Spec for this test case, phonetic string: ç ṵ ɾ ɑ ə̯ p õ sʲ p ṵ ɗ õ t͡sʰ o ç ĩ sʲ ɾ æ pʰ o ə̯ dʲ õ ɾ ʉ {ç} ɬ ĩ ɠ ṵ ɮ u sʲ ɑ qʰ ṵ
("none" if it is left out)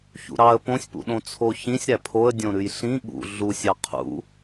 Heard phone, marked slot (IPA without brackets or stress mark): j